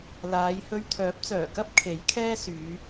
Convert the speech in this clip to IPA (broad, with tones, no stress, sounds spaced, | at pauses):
l aː˨˧ j h ɵ˧ ɥ t̪ʰ œː˨˥ p̚ t͡s œː˨˩ k ɐ˥ p̚ kʰ e˨˥ j kʰ ɛː˥ s yː˨˧